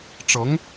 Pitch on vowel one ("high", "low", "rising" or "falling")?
rising